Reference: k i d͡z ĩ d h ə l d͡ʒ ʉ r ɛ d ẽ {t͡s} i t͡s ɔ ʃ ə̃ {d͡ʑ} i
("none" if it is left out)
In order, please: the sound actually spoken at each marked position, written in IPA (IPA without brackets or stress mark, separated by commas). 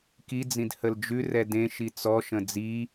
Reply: ʃ, d͡z